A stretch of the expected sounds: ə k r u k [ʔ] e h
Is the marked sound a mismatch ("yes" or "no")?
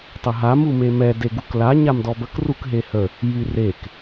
yes